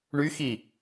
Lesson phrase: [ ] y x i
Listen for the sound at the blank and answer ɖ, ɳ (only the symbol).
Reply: ɳ